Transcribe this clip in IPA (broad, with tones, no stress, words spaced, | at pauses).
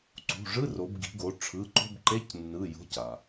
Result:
ǀṳ˩˧˩ ʐɯ˧˥˧ro˩˧b ɡi̤˩˧ɡo˩˧ ʈ͡ʂʰɯ˩˧˩ǃo̤˧˥˧bǃe˧˥˧c nːɯ˩˧˩ jo̤˩˧˩c a˩